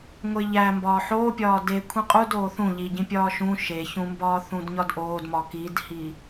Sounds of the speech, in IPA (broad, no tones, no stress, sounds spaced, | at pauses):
ŋʷ e ʎ æ m b ɒː ħ oː pʲ ɒː d e kʷʰ ĩ qʼ u d oː θ ũ ʎ i ɟ ĩ pʲ ɒː ʃ ũ ʃ e ç ũ m b ɒː θ ũ d ɲ ɒ d ʔ oː d m ɒ k i d h i